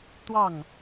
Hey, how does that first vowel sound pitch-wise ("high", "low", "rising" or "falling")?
falling